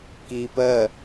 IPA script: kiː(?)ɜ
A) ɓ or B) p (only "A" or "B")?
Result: B